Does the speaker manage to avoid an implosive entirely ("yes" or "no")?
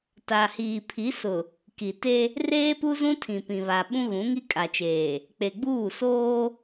no